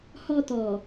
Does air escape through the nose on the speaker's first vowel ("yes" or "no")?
no